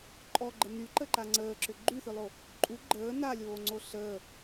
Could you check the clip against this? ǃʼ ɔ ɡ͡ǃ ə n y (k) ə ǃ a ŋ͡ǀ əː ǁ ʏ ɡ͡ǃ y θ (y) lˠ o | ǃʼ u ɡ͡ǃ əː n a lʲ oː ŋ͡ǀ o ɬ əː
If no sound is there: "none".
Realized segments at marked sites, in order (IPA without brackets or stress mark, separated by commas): ǃ, ʏ